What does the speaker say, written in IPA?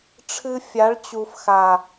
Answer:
ʈ͡ʂʰɨ˦ fʲa˨˦ɭt͡ɕu˨fxa˨

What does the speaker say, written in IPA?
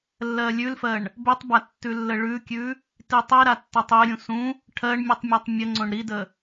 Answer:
lːɜlʲʉlfɜɳ | bʉtˤba tːʉlːəɭʉkʲʉ | titˤiɾa tːɜtˤiɾʲũ sũ | ʈʰɜɳ mʲʉtˤmʲɜtˤmʲəŋ͡ǀõɳ ɾidə

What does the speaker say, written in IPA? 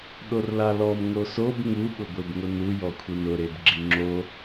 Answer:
ɗorlalɔm ŋosob ŋu ɓʊɡʷebŋʊnu jɔkʷʰinʊ ɾebɡ͡ǁiŋ͡ǁo

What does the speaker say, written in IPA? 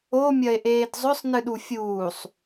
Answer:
omʲɐe̯ʔeːd zˤɵsˤnɨɗu fʲuːsˤ

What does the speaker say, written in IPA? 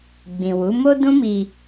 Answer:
ɡ͡bĩ˨wu˨˦ mo˦ dũ˦mi˧

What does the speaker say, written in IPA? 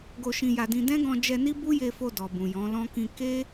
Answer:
ɡo˧ʃĩ˧ ja˧dĩ˧ dɛ̃˦ɡɔ̃˧d͡ʒɛ˧ni˦ bu˦je˧fo˧ dɔ˨bũ˨jɔ̃˨˦lɔ̃˦ kĩ˧ke˦

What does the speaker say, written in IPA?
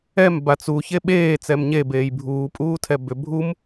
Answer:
ɛm bat͡su çeɓeː t͡sɛmɲe beːjbʱuː pʼuːtʰɛbʏ bʱum

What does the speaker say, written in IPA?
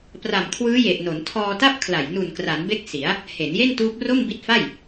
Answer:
pra˨˩mkʰwɯː˦˥je˨˩ʔno˩˦n tʰɔː˧ta˥˩p̚kʰla˨˩j nu˨˩nkra˩˦nbe˦˥k̚ si˩˦a̯ | he˩˦nje˥˩ntuː˦˥p̚ ro˥˩mbi˦˥t̚fa˥˩j

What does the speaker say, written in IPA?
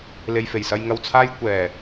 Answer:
le˨jfe˨˩jsɐ˧j ŋɐ˨wt͡sʰaː˧jkʷɛː˨˩

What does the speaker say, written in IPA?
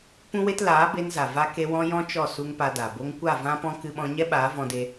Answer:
pũ˦we˦t laː˨˦ be˧nza˨ va˦ ke˧wɔ̃˧ jɔ̃˦t͡ʃɔ˦˨ su˦ŋpa˧da˨ bo˧ŋkʷa˦˨ vã˦pɔ̃˦ kɨ˧ɓɔ̃˧ ɲɛ˦ɓaː˨˦ vɔ̃˧de˧

